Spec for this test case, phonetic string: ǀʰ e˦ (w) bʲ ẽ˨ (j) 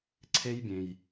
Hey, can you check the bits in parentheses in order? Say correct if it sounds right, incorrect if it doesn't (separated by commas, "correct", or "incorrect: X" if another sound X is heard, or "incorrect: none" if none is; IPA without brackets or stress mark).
incorrect: j, correct